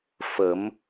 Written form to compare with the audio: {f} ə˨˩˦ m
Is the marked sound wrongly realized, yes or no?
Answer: no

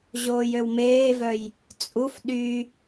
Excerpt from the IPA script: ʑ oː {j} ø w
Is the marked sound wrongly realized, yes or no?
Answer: no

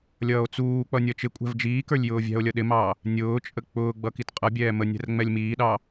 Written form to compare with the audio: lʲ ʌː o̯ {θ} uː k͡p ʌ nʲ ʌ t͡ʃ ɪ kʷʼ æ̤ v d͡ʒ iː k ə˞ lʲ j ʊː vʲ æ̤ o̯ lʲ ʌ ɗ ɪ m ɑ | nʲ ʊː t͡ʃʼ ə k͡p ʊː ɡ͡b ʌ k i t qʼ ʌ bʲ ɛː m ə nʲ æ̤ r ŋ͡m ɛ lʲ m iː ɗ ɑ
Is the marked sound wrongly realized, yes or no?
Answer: yes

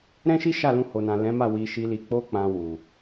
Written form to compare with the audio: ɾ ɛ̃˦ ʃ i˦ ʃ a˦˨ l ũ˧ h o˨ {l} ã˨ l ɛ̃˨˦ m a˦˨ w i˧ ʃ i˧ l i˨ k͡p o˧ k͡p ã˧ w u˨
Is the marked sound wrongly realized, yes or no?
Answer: yes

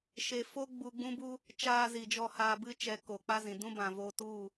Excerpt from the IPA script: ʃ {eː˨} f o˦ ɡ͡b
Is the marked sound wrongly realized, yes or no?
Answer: yes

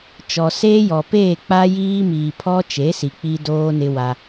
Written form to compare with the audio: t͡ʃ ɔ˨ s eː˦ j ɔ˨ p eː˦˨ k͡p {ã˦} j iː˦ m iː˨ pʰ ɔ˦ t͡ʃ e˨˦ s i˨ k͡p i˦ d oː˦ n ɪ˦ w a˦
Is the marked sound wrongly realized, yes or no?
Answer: yes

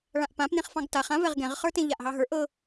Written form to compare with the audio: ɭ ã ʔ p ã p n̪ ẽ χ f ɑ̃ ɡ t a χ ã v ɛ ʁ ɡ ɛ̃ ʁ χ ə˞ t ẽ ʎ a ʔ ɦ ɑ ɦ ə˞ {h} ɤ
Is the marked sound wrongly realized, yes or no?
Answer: yes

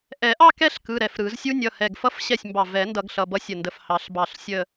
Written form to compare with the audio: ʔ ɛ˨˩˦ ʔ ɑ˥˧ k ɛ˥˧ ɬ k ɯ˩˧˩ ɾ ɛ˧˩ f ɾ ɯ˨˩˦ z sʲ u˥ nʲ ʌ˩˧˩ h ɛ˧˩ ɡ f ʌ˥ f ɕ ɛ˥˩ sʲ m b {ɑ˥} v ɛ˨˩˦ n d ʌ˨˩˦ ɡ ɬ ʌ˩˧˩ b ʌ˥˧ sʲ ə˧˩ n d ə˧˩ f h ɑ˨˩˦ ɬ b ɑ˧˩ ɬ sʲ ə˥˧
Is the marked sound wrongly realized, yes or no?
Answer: yes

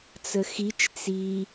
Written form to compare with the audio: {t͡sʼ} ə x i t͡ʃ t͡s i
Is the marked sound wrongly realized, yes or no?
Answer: yes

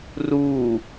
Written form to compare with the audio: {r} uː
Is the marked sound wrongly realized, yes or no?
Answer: no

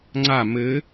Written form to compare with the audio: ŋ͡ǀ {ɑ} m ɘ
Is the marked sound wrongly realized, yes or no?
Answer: yes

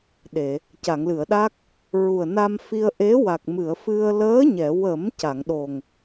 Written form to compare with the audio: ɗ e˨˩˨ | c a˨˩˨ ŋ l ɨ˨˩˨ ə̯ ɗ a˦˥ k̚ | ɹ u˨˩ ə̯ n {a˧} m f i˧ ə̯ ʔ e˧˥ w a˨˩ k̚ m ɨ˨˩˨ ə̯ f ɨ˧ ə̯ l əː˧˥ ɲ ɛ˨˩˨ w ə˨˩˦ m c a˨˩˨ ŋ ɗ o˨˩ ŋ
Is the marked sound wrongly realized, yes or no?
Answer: no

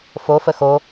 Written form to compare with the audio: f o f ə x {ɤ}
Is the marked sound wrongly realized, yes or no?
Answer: yes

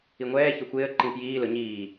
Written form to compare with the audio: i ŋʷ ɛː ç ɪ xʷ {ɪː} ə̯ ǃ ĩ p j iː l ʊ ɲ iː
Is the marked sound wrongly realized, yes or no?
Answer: no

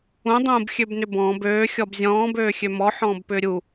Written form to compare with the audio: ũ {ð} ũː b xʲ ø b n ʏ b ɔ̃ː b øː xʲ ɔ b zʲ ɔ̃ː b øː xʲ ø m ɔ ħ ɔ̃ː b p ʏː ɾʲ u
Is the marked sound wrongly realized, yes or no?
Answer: yes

